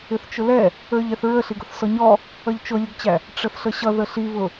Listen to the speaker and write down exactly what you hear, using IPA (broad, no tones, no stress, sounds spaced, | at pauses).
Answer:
ɪ θ t͡ʃ ʊ l ɛ | ə˞ ʎ ɛ θ ɹ ə ɬ i ɡ ʊ θ s ɔ ɲ ɔ | ʌ ʎ t͡ʃ ʊ lʲ ʊ ɡ t͡ɕ æ | ʈ͡ʂ ə θ ɬ ə ɕ ʌ ð ə ɬ i β ʊ